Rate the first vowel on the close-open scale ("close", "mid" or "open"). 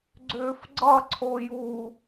close